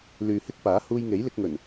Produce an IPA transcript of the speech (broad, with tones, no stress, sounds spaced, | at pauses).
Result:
l yː˨ h ɪ˥ k̚ p aː˨˥ h uː˧ j ŋ e˨˥ j l ɪ˧ k̚ ŋ ɵ˨˩ n